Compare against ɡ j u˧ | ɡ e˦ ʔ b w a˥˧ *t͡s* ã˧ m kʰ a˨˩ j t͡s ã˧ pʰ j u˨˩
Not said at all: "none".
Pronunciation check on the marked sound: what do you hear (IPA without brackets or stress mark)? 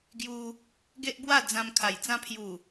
d͡z